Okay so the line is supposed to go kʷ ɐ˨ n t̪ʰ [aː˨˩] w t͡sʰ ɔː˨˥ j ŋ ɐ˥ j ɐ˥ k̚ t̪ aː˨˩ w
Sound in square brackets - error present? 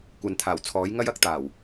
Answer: no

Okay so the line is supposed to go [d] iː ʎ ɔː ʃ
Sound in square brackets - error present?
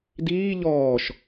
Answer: no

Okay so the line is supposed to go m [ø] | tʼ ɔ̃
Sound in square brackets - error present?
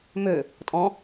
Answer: no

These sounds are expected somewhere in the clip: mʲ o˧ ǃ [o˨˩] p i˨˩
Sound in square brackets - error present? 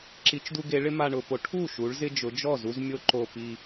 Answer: no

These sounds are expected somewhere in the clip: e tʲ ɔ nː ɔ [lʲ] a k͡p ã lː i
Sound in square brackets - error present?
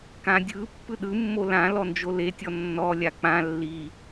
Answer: no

